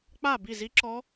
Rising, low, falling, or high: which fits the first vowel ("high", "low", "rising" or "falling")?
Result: falling